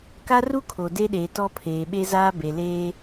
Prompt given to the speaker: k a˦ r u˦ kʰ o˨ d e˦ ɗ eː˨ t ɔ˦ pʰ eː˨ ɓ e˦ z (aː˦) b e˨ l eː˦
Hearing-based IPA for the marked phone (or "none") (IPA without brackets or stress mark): aː˦